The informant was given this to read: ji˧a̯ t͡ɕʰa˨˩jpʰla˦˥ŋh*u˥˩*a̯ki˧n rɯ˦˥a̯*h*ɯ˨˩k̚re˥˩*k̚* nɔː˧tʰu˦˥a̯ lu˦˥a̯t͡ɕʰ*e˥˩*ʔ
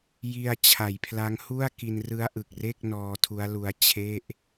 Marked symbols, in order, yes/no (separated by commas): yes, no, yes, yes